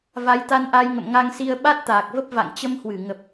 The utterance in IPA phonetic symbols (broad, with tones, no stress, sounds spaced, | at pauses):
v a˨˦ j t̪ a˧ n ʔ a˧ j ŋ ə̰˧˨ m ŋ a˧ ŋ s i˧ ə̯ ɓ a˦˥ t̚ t̪ aː˨˩ k̚ v ə˦˥ p̚ v a̰˧˨ ŋ t͡ɕ ə˧ m h w ɨ˧˩ ŋ ə˨˩ p̚